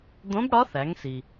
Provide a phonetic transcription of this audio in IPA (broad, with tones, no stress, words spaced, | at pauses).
d̪õ˧˥bɽɒ˧˥θæ˩˧ŋsi˩